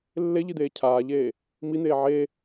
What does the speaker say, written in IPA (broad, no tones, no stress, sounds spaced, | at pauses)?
lː e ʎ i d̪ eː cʰ aː ʎ eː | m i n̪ eː ʕ e